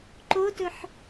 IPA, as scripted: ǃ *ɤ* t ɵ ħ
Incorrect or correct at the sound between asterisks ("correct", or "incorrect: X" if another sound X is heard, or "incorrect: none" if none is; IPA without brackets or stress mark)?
incorrect: o